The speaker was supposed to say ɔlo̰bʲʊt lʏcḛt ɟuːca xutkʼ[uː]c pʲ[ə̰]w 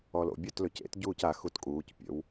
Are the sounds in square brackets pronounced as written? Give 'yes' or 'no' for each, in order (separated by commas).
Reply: yes, yes